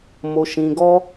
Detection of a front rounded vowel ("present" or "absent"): absent